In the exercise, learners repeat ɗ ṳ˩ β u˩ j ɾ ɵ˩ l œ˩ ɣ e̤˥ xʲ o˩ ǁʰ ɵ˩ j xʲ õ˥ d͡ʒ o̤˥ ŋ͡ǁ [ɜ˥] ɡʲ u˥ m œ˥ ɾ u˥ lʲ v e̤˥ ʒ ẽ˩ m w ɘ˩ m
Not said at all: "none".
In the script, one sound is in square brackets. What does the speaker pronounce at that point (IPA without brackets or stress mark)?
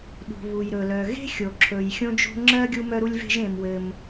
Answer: ɜ˥